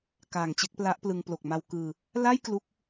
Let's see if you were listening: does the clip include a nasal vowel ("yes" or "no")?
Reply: no